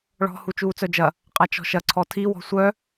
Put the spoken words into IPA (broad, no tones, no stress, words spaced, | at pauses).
ɭɔ̤ hut͡ʃuːt͡sœd͡ʒɐ | qʼat͡ʃɔ̤ʃɐ ǀʰɔtʰi wɔ̤sʷœ